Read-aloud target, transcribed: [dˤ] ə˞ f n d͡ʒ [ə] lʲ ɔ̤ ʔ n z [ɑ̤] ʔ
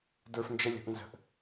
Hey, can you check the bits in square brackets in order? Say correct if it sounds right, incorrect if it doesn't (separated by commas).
incorrect, correct, incorrect